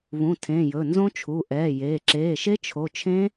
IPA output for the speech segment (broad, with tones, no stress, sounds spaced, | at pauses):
β ũ˩˧˩ tʰ ẽ˩˧˩ j ɵ˩˧˩ n z õ˦˥ t͡ʃʰ u˩˧˩ ʔ ɛː˩˧˩ j eː˩˧˩ ǁ eː˩˧˩ ʃ e˦˥ t͡ʃʰ o˩˧˩ t͡ʃʰ ẽ˦˥